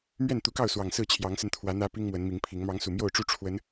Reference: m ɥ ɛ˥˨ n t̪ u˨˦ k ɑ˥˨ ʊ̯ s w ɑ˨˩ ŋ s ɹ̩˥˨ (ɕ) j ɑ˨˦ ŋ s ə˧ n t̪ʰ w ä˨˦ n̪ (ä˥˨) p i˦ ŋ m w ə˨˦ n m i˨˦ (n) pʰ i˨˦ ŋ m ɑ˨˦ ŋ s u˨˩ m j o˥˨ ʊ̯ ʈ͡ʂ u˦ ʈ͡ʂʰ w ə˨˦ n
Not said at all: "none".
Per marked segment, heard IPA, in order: t͡ɕʰ, ä˦, ŋ

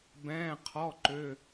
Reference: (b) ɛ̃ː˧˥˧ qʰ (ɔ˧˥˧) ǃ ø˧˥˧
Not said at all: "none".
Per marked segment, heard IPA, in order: b, ɔ˧˥˧

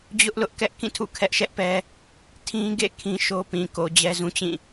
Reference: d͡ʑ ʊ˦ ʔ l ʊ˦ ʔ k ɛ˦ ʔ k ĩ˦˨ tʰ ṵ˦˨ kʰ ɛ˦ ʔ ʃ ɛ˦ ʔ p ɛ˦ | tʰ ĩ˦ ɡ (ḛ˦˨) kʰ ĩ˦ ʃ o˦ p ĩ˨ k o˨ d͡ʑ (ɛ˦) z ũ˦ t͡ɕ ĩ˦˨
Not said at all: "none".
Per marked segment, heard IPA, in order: ḛ˦˨, ɛ˦

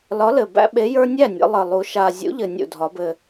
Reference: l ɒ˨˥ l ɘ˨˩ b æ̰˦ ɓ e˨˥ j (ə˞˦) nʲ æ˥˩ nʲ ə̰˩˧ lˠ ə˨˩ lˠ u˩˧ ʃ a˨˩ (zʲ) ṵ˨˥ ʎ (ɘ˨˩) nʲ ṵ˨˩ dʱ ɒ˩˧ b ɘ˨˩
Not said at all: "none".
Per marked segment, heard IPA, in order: ə˞˦, zʲ, ɘ˨˩

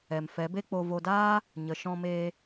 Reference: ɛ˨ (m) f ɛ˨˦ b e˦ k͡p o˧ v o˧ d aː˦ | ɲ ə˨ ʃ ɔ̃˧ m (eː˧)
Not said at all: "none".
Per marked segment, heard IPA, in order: m, eː˧

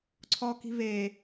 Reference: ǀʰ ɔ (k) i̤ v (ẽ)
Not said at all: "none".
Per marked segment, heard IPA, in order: k, e

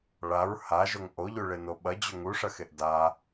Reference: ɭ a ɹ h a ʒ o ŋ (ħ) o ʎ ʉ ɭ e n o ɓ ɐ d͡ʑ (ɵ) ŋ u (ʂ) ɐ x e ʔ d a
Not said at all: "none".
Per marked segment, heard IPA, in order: ʔ, ɵ, ʂ

